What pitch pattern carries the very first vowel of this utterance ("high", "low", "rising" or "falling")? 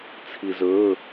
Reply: low